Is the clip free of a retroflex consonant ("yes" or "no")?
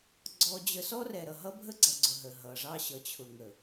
no